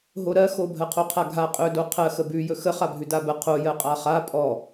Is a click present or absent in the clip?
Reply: absent